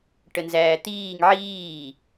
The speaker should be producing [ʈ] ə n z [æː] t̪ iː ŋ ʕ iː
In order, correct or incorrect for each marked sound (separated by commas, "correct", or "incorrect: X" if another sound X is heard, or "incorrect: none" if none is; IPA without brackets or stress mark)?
correct, correct